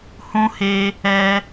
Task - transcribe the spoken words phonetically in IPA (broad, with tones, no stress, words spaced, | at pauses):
hũ˧he˧ | ɛ˦